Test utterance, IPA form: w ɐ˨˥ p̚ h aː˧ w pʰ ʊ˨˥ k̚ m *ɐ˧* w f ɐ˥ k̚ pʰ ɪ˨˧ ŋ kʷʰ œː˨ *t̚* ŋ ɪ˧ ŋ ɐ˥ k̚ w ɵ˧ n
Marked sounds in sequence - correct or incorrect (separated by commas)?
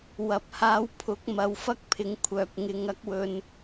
incorrect, incorrect